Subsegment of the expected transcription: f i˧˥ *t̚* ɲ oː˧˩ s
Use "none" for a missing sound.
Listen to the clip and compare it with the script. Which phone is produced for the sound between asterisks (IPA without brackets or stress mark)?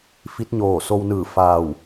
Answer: t̚